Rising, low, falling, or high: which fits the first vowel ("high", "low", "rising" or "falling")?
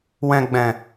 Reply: low